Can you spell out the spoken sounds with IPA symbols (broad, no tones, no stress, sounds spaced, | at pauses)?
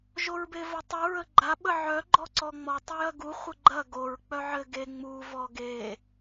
ʒ o ɹ b e v o tˤ u ɹ ə ɡ͡ǃ a ɓ ə ʕ œ ɡ͡ǃ ɔ ǀ ɔ ŋ͡m ɔ tˤ u j ɐ ɡ u χʷ ə ɡ͡ǃ ɐ ɡ o ɹ k͡p œ ʕ ɘ ɡ e ŋ͡m u v ɔ ɡ e